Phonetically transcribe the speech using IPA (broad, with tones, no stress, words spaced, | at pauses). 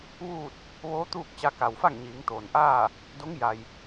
ʋuː˥˨t̚ | ʋoː˧˥t̪uː˥˨k̚ t͡ɕa˧ka˩wfa˥˨ŋ ɲiː˩˧ŋt̪oː˩nʔaː˥˨ | do˧˥ŋ ja˩j